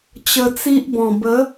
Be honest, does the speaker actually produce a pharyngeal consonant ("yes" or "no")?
no